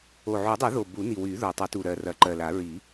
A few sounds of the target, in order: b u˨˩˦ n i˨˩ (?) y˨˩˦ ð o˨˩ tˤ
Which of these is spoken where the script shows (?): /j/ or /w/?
w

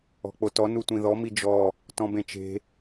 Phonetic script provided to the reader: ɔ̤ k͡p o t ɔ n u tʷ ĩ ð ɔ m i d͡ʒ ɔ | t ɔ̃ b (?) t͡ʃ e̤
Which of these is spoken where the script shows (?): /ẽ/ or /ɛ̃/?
ẽ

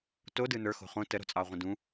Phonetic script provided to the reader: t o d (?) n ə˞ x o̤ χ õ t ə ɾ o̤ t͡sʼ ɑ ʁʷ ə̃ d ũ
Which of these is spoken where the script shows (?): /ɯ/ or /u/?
ɯ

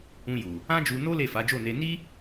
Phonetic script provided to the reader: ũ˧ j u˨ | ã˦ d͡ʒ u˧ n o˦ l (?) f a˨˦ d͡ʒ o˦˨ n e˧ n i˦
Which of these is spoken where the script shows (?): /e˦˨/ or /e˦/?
e˦˨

